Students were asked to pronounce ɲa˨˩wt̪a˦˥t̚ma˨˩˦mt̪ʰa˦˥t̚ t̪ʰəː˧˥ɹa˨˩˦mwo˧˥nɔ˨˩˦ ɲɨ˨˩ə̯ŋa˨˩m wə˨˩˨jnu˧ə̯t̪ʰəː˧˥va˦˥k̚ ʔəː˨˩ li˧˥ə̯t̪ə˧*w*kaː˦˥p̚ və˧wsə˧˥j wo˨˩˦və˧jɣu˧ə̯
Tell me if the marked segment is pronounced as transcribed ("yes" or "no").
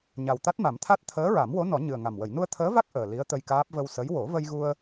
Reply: no